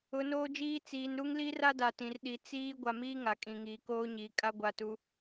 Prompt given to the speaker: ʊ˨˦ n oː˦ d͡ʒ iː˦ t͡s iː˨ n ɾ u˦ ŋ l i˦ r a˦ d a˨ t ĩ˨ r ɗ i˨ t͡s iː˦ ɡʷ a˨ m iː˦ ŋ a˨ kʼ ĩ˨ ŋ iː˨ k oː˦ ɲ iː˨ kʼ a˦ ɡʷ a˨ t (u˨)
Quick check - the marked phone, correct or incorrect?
correct